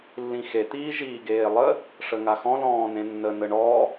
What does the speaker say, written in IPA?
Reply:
lː ĩ x e t̪ iː ʒ iː ɡ eː lˠ ə | ʂ ə ŋ a x ɔ̃ l ɔ̃ː n ẽ nː ə n ə ɳ ɔ

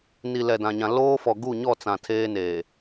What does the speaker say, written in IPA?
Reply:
n i˨ l ɛ˨ d ã˨ ɲ ã˨ l oː˦ f ɔ˨ ɡ u˦˨ ɲ ɔ˦˨ t͡s ã˨ tʰ eː˦ n eː˨

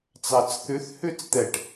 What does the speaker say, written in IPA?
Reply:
t͡s ɑ t͡s θ ʉ θ h ʉ t͡s t̪ ɛ ʈ

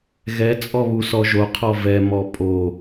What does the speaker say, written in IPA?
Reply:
ɣ ɛ t͡sʼ ɔ β u s ɔ ʒ o qʰ ɔ v ɛ m ɔ pʼ o

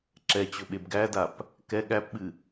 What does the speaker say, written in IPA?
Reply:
ǁ ɛ t͡ɕ ɵ ɓ e b ɡ æ d a p | k ɛ ɠ æ p ɓ ɨ

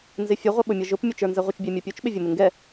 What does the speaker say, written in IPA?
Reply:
n z ɪ fʲ ə ʁʷ ʌ ɓ ʊ mʲ ʌ ʒ ʊ p mʲ ʊ t͡ʃ ə˞ n z ɛ ʁʷ ɪ t͡ʃ bʲ ɛ mʲ ɔ pʲ u t͡ʃ ɓ ɪ vʲ ʊ m ɪ ŋ ɡ ɛ

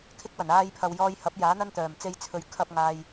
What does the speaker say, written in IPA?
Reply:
kʰ ɪ˥ k̚ w ɐ˨˩ n aː˧ j pʰ ɐ˨ w j ɔː˧ j h ɐ˨˥ p̚ j aː˨˥ n̪ ɐ˥ n t̪ œː˨˩ m t͡s e˧ j t͡sʰ ɵ˨˧ ɥ kʰ ɐ˧ p̚ ŋ aː˨ j

